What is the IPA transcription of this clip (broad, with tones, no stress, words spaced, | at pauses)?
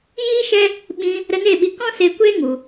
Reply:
jiː˦ʃɛ˦ | ɓĩ˧ | ɾə˧ne˦˨ɓi˧ kɔ̃˦se˧kʷe˦ ŋu˧